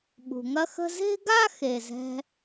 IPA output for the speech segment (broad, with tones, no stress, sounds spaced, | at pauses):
ɓ ṳ˨ ŋ ɐ˥ x ə̤˥ z e̤˥ ɡ a˥ x e˨ z ɛ̤˦